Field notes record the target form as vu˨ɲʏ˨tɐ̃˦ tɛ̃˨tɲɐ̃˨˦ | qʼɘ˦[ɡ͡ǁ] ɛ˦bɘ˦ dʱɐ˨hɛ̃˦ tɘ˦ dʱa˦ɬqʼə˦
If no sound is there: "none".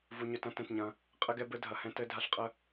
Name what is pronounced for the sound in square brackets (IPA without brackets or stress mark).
ɡ